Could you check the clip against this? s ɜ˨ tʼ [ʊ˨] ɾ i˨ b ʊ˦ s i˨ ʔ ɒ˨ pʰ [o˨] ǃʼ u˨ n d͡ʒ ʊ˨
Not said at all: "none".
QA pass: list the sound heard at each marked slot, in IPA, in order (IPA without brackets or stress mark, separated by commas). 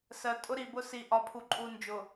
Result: ʊ˦, u˨